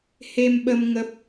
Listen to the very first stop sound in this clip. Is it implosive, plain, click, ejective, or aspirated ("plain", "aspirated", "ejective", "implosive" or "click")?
implosive